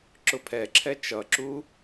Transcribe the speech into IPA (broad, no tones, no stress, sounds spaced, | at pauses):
ǁ ʊ pʰ ɛ ǁʰ ɛ t͡ʃ ʌ ǁ u